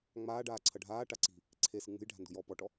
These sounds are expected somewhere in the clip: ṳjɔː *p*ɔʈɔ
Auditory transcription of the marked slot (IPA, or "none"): p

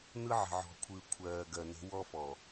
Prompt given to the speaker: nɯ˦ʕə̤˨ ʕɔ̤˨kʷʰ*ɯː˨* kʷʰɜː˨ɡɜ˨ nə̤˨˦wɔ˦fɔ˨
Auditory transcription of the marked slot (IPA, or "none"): ɯː˨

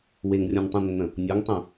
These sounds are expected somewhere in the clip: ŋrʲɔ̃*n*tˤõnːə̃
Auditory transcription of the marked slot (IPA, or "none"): n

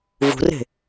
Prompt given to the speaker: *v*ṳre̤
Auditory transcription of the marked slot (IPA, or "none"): v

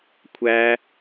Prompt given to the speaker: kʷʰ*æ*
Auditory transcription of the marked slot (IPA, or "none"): æ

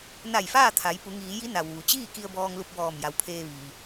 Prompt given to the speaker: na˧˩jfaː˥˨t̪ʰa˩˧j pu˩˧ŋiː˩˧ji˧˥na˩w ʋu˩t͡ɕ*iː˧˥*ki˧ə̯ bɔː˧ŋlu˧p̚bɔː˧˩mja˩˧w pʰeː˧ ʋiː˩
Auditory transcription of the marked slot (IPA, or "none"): iː˥˨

